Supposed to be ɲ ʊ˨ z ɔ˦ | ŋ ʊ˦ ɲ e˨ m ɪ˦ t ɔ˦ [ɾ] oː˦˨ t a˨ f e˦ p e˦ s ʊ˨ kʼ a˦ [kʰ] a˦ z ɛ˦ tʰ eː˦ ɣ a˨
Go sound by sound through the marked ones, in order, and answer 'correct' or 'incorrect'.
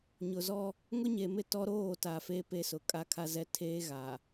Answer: correct, correct

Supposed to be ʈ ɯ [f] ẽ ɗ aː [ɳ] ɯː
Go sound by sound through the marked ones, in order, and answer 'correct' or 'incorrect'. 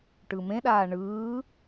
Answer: incorrect: m, correct

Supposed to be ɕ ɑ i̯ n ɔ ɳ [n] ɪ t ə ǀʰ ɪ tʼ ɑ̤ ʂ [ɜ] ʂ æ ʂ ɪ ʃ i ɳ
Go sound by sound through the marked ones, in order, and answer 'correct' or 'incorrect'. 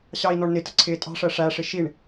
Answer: correct, correct

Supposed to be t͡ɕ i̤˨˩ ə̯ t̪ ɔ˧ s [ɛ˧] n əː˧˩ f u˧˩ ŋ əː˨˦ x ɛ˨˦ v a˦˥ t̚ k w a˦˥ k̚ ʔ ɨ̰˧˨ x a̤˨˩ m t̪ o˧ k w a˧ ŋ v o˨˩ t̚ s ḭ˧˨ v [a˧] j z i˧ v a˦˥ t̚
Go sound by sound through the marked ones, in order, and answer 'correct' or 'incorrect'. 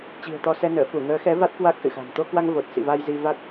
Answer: correct, correct

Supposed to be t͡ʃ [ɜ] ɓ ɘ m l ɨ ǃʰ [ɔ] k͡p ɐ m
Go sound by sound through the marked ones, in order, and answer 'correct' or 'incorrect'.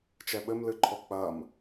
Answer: incorrect: ɛ, correct

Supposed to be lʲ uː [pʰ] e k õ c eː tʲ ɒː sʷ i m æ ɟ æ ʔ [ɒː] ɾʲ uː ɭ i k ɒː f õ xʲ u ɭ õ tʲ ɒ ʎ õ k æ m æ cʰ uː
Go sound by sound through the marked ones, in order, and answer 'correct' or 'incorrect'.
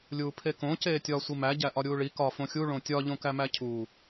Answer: correct, incorrect: ɒ

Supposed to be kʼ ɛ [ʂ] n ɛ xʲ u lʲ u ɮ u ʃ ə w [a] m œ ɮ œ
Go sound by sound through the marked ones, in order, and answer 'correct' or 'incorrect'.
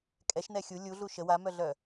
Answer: incorrect: ʃ, correct

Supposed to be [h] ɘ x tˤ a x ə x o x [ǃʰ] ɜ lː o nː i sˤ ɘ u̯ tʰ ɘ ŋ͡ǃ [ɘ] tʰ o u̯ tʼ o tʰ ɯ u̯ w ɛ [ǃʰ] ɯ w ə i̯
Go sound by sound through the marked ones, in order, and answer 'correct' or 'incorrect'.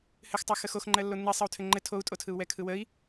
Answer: correct, incorrect: ŋ͡ǃ, correct, incorrect: kʰ

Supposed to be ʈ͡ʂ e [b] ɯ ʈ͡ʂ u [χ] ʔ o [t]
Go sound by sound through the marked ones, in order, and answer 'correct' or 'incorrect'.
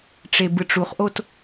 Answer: correct, correct, correct

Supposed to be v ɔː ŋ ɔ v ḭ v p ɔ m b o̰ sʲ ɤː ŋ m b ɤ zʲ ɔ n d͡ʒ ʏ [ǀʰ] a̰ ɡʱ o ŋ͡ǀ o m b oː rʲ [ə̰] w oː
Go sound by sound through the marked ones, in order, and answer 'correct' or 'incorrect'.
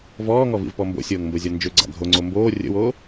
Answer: incorrect: ɡ͡ǀ, correct

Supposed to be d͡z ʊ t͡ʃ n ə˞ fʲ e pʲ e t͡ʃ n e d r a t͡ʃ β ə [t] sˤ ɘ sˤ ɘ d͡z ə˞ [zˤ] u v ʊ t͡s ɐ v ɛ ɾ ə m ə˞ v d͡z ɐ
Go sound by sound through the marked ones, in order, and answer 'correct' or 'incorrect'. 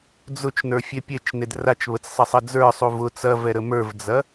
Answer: incorrect: t͡s, incorrect: sˤ

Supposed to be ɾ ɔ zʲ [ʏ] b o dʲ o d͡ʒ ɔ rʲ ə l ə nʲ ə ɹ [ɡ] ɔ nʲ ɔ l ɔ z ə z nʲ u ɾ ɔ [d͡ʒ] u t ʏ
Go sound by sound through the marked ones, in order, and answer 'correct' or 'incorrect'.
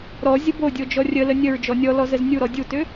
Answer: incorrect: ə, incorrect: d͡ʒ, incorrect: dʲ

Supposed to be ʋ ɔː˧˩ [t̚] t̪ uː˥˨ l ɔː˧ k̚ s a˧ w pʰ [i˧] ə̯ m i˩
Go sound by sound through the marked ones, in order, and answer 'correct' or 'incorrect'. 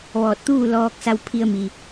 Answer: correct, correct

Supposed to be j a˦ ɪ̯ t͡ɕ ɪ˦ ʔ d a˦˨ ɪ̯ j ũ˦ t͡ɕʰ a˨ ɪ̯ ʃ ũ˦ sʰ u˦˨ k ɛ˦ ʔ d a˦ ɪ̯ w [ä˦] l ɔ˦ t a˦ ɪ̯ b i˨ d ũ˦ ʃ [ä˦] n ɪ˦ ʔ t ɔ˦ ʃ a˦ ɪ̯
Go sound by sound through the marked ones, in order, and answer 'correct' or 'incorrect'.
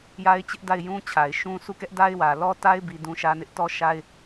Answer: incorrect: ä˨, correct

